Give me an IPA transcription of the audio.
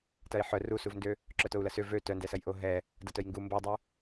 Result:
t ɐ i̯ ħ œ r u s u v n d ø | ǁ œ t o u̯ l ɐ s ø v ø t œ n d ɛ s ɐ j ʔ o ɦ ɛ | d ɐ t œ j ŋ ɡ u m b o dˤ u

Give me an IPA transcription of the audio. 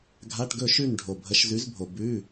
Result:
ɡʱ a˧˥˧ ʈ ɡ ɵ˥˨ ʃ ʉ˥˨ n ɖʱ o˨ bʱ ə˨˥ ʃ z ʉ˨˥ z bʱ o˨ b ʉ˧˥˧

